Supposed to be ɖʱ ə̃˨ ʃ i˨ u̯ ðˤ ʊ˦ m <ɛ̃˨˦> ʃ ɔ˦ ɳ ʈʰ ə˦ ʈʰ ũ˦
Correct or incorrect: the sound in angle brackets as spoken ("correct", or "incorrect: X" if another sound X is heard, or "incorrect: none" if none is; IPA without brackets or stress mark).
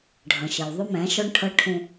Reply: correct